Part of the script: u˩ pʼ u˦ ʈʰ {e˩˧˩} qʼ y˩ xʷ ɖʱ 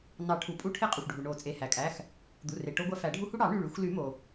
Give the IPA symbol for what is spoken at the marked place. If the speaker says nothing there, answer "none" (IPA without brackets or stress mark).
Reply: e˦